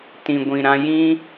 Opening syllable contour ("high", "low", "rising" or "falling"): low